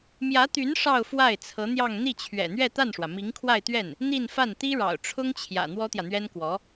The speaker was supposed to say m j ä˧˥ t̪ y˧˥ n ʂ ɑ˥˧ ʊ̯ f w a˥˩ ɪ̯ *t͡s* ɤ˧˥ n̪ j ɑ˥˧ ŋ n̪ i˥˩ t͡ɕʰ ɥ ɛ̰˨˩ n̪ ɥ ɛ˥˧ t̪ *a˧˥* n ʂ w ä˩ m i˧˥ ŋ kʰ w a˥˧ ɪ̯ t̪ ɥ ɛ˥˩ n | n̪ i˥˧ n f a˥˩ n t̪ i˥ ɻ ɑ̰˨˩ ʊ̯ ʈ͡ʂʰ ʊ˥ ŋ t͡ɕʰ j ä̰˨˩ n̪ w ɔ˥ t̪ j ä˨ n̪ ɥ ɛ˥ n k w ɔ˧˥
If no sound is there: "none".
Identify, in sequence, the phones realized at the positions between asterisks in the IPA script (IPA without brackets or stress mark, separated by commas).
t͡sʰ, a˥˩